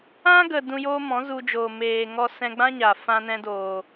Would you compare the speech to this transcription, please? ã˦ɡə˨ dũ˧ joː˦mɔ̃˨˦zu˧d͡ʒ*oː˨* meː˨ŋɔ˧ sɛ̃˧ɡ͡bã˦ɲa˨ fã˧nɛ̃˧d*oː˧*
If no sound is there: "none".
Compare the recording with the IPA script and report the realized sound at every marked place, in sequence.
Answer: oː˨, oː˨

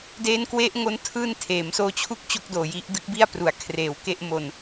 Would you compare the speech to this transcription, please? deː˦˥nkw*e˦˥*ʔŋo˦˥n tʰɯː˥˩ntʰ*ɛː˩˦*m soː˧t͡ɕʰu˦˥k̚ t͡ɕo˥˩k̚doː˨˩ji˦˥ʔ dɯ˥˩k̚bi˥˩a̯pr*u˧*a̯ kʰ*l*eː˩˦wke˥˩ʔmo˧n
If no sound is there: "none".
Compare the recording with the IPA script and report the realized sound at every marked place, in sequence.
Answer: e˦˥, eː˩˦, u˩˦, r

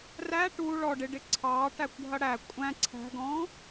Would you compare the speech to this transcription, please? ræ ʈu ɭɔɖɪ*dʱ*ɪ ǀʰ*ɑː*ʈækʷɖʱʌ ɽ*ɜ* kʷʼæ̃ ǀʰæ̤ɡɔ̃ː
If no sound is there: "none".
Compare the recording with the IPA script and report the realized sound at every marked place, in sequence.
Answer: ɖ, ɑː, æ

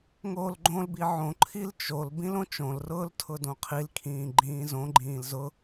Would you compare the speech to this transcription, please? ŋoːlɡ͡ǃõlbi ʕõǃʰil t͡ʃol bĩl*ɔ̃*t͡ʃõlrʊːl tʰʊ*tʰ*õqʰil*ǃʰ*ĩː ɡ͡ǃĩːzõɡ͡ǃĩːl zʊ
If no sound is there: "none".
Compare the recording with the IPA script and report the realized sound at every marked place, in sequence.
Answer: õ, d, kʰ

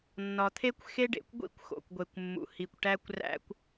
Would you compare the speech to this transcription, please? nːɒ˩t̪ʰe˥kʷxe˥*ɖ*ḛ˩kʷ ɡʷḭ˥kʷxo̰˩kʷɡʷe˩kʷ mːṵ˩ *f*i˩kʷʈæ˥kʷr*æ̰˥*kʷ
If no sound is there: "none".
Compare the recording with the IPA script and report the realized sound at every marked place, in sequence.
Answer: ɖ, h, æ̰˥

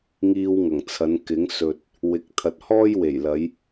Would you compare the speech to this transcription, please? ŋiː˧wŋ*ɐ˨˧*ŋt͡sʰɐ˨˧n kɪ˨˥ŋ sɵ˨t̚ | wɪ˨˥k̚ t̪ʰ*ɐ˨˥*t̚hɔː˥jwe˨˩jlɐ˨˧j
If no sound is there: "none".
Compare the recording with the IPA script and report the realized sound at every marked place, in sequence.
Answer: ɐ˨˩, ɐ˨

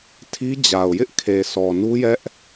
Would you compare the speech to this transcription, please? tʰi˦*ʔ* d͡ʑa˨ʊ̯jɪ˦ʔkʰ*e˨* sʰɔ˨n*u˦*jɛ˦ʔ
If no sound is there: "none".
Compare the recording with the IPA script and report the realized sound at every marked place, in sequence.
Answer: none, e˨, u˦

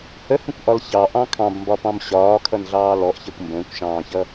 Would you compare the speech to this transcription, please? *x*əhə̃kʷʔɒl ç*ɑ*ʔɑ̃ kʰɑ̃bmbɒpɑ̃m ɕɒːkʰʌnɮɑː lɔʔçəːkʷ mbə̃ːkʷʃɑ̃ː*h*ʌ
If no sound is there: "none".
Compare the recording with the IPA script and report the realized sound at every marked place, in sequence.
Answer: h, ɑ, ç

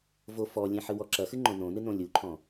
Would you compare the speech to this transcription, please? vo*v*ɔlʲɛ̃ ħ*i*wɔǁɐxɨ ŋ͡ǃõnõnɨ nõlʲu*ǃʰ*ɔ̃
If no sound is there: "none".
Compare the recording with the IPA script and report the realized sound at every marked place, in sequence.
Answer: f, ɨ, ǃʰ

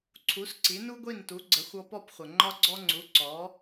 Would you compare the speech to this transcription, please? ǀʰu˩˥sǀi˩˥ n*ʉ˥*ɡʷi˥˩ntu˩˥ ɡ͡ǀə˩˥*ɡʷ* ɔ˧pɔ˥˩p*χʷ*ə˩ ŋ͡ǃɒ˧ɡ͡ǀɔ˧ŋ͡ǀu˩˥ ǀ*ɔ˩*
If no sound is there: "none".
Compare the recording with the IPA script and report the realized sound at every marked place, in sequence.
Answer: u˥, xʷ, χʷ, ɔ˩˥

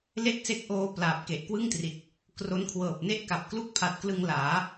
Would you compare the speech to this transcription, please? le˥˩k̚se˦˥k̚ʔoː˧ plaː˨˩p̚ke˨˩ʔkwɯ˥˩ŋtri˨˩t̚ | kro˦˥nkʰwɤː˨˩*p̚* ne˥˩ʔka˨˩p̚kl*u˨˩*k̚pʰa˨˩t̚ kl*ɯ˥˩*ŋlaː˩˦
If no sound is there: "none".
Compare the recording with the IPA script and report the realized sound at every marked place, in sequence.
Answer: p̚, u˥˩, ɯ˧

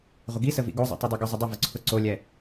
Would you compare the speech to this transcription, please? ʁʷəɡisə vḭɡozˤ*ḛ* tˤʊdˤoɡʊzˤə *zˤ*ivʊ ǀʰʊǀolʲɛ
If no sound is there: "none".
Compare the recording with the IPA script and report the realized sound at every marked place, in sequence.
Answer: ɛ̰, dˤ

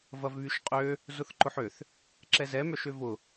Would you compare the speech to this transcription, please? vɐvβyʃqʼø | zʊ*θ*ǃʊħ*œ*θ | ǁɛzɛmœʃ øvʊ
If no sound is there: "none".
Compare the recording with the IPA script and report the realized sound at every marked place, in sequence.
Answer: θ, ø

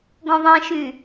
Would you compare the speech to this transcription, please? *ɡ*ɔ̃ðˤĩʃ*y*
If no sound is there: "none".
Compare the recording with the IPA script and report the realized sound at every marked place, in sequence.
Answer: ɡ, y

